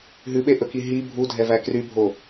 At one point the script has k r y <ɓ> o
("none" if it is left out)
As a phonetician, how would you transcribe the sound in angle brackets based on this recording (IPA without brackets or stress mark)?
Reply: bʱ